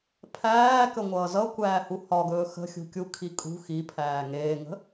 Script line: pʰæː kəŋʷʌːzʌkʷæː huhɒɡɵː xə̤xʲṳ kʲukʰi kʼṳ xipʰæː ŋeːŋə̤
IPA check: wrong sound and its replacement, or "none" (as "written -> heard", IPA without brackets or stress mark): none